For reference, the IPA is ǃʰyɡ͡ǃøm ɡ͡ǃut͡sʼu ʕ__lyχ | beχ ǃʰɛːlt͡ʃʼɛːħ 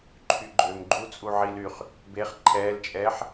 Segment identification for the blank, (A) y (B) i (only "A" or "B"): B